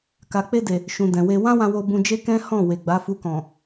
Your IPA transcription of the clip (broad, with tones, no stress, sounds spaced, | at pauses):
k a˨ k͡p e˧ d e˨ | ʃ ũ˨ d ɛ̃˨ w e˧ w ã˦ w ã˧ w o˧ b ũ˧ d͡ʒ e˦ k ɛ̃˦ h ɔ̃˦˨ w e˨ ɡ͡b a˨˦ f u˧ k ɔ̃˨